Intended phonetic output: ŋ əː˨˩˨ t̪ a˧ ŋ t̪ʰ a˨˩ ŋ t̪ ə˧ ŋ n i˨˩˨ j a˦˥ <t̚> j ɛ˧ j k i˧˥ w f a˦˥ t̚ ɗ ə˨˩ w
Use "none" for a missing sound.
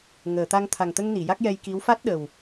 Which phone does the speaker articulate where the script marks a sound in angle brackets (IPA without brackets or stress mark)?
k̚